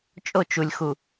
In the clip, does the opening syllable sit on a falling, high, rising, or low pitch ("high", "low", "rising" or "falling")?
falling